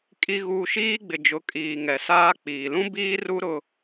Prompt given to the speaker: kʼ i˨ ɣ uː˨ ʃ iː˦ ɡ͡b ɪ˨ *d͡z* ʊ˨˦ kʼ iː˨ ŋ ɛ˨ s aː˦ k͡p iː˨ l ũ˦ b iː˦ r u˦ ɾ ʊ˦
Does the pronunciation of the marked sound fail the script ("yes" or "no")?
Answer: yes